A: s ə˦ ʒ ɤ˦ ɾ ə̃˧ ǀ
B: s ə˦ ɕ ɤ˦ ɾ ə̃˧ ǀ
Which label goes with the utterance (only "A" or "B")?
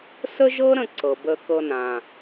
A